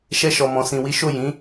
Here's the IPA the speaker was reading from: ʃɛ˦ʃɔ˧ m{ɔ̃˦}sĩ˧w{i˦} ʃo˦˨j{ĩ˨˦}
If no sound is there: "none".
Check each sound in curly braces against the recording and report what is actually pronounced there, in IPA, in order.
ɔ̃˧, i˦, ĩ˨˦

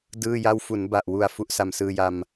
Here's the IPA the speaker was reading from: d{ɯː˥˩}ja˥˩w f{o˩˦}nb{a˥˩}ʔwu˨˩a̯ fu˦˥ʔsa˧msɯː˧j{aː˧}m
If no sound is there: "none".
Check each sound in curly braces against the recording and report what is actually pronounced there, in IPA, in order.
ɯː˥˩, u˩˦, a˨˩, a˧

